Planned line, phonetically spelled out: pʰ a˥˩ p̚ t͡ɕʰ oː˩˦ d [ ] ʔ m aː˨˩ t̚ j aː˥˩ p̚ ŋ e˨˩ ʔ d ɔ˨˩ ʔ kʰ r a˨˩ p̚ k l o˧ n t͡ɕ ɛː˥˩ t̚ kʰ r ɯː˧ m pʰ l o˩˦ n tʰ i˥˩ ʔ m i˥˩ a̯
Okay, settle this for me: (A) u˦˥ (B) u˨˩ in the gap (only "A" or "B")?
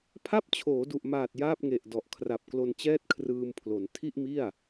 B